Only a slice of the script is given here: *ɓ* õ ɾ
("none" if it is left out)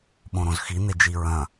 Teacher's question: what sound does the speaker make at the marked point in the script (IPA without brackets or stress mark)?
ɓ